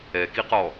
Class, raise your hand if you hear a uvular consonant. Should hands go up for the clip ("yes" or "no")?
yes